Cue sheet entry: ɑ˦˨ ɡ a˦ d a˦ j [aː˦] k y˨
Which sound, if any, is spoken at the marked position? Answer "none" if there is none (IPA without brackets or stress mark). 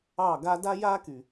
aː˦